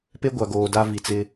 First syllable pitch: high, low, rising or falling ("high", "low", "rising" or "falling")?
high